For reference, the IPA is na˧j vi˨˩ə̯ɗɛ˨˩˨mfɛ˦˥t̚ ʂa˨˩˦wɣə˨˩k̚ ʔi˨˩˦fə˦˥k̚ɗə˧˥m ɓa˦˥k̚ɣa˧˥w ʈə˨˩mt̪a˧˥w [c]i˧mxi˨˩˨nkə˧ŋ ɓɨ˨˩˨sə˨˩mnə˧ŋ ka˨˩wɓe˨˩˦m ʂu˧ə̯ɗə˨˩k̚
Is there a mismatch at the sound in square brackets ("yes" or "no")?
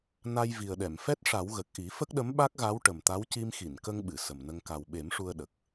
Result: no